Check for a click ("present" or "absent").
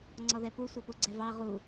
present